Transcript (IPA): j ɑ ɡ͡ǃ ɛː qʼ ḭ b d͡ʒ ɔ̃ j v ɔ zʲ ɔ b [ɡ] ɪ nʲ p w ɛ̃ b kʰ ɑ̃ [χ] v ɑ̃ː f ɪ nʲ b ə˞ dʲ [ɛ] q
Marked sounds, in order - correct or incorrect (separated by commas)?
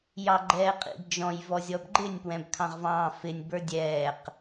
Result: incorrect, incorrect, incorrect